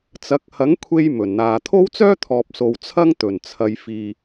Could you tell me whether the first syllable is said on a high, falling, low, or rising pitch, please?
rising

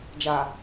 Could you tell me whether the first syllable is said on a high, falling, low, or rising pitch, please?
low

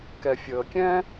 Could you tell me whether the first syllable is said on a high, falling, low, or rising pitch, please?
low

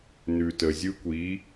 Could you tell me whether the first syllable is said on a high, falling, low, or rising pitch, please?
low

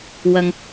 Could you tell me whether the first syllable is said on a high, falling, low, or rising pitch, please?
low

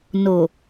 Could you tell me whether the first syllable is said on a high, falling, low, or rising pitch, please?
low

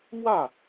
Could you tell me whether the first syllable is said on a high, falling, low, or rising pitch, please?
falling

